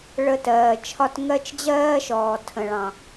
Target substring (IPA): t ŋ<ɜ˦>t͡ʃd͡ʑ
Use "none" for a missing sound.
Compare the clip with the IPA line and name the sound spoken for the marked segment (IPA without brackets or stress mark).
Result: ɜ˦